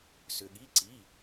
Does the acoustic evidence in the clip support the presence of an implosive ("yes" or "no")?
yes